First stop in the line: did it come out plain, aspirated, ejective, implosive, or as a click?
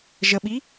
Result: implosive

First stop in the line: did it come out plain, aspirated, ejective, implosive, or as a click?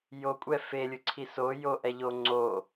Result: ejective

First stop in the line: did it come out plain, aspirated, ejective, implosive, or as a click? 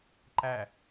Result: click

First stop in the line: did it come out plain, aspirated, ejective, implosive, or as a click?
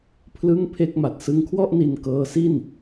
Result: aspirated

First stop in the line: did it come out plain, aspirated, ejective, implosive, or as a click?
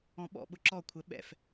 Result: implosive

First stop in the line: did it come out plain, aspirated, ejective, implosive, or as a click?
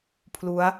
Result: aspirated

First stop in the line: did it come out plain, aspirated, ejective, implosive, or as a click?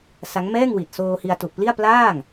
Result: plain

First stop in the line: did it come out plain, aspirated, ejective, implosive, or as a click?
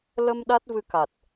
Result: implosive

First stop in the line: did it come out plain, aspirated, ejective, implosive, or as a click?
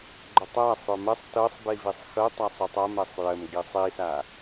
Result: click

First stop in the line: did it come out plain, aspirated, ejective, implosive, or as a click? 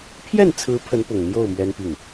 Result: aspirated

